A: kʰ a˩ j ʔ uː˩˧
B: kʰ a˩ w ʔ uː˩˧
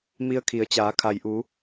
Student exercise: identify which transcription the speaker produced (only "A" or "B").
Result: A